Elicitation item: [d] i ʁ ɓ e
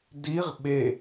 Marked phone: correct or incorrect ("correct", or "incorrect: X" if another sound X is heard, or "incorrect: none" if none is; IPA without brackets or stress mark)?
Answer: correct